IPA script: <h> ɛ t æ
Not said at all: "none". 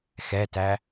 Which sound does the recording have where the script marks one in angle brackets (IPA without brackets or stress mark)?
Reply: x